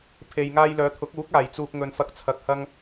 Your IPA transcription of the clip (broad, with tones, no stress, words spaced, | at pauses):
pʰe˨j ŋaː˧jlœː˨˧t̪ʰʊ˨˥k̚uː˨˥k̚ aː˨˩jt͡suː˨k̚ ŋɵ˨nfɐ˨˥k̚ t͡sʰɐ˨k̚hɐ˧ŋ